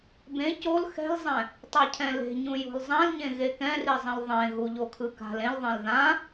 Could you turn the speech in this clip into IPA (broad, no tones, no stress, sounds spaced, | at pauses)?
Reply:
b ẽ c o l x ɛ̤ l zˤ ɛ̃ | tˤ a cʰ ɛ̃ l e̤ ɲ ũ j o̤ l zˤ ã l ɲ ẽ ɣ e k ɛ̃ r i zˤ ĩ l ðˤ ẽ ɣ u ʎ o kʰ ɯ k a̤ l ẽ l ðˤ ẽ l ð ã